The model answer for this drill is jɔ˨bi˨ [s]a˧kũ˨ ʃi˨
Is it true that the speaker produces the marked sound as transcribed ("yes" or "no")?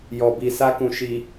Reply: yes